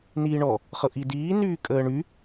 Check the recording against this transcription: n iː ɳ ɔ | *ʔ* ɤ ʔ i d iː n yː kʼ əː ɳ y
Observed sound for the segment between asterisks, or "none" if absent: χ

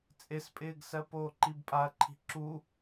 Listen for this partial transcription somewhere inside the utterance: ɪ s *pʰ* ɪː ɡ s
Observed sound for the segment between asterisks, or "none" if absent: pʼ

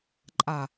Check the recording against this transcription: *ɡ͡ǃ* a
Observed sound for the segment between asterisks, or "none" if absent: ǃʼ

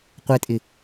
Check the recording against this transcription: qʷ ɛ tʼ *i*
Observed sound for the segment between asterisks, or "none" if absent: ɪ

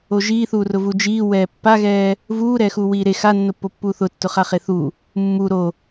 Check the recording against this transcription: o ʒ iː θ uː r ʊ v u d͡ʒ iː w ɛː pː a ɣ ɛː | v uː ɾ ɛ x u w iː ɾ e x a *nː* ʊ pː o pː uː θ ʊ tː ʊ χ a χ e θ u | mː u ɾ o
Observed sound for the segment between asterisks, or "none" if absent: nː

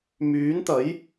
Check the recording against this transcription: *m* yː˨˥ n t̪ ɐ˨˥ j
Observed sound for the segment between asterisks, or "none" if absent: m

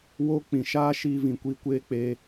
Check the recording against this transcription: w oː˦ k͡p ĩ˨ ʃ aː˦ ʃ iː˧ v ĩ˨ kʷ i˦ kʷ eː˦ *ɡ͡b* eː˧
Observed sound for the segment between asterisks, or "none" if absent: k͡p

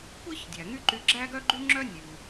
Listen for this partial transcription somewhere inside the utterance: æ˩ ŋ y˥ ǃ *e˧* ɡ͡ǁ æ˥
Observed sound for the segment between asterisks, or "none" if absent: y˧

